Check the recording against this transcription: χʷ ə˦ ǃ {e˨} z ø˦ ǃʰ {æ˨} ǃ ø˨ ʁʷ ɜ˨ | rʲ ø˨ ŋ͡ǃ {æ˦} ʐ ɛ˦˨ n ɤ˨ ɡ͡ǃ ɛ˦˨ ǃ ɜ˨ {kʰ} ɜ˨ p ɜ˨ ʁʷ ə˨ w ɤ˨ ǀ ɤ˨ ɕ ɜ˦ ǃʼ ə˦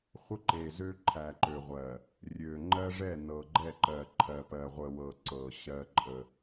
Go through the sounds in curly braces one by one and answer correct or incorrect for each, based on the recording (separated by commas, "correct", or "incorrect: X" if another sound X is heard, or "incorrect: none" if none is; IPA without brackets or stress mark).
correct, correct, incorrect: ɜ˦, incorrect: ǃʰ